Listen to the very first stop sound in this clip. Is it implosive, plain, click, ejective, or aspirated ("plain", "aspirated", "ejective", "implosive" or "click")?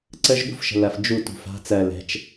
click